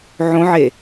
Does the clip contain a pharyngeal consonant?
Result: yes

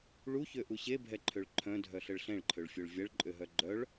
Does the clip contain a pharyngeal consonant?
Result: no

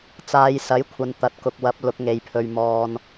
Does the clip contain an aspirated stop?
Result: yes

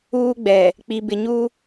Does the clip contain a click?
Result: no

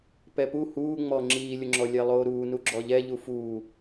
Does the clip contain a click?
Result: yes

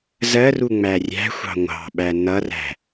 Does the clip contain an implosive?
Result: yes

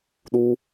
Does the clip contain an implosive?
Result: yes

